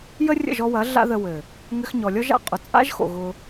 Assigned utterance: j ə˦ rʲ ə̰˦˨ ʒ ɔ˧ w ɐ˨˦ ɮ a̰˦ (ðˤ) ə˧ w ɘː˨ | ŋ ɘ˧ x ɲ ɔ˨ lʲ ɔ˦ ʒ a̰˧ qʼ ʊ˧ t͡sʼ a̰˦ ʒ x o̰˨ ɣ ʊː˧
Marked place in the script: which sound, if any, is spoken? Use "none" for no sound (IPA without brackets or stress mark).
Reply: ð